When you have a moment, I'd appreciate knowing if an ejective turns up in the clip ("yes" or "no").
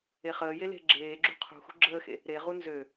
no